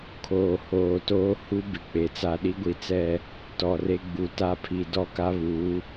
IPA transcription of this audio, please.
kʰoː˨ hoː˨ toː˦hu˦ bɪ˨k͡pe˨ t͡sa˨ɗi˦ɡʷi˨t͡sɛ˦˨ | tɔ˨re˦ɡ͡bu˨˦ ta˦pʰi˨ dɔ˦ka˦βuː˨˦

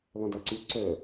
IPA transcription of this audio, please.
lˠœ̃daǀy ǀœ

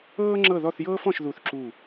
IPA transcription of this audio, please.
ɤː˥ŋ͡ǁɤ˥˧ðɔ˥˧θjɤː˥f ɔ̃˥ʃðu˥˧θǁu˥˧

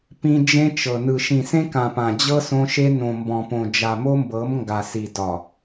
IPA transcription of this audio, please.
pĩ˦ d͡ʒẽ˦t͡ʃɤ˨ nɯ˨ ʃĩ˨sẽ˦ kã˨pã˨d͡ʑɤ˦ sõ˦ʃe˦ nõ˨mbɔ̃˨põ˨ d͡ʒa˨mo˦mbɤ˨˦m ŋɡa˨si˨ dɒ˨

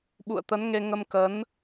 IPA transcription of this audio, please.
ɓṵ˧˨ə̯t̪ə˨˦nŋe˧ ŋə˧mkə˨˦n

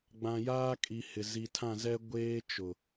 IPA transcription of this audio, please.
ɡ͡bã˨jaː˦kʼi˨hɪ˨ zi˨tʰã˦˨zɛ˦ ɡʷeː˦t͡ʃʊ˨

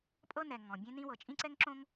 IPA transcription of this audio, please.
pʼɤ˥ nɛ˩ ŋɔ̃˩bʲẽ˥nĩ˥wɤ˩ t͡ʃʼĩ˥ǀɛ˥ŋǁõ˥ŋ

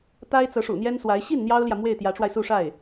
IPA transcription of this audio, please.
t̪a˥ɪ̯t͡sɤ˧˥ʂṵ˨˩ n̪jɛ˥nswa˧˥ɪ̯ ɕi˥˩n n̪jɑ˥ʊ̯ljä˨ mwe˥˩ɪ̯t̪jä˧˥ʈ͡ʂwa˧ɪ̯ su˥˧ʂa˥˩ɪ̯

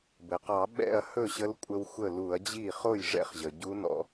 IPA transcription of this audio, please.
bɘ˩qɑ˧˩˧ ɓɛ̰˥˩ɐ̯ hɵ˥˩ɕə˧˥lkʷʼə˧w xʷə˥˩lu˧˩˧ɐ̯ d͡ʑi˥˩ χo˥˩jʐɛ̰˥˩χʑə˩ ɟu˧˥nɔ̰˧

